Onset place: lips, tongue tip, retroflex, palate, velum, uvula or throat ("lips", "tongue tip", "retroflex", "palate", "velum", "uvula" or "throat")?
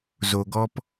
tongue tip